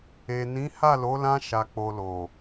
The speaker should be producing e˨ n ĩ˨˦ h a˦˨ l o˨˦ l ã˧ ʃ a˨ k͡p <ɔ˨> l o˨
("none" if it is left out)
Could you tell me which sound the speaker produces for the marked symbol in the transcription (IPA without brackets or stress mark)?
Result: o˨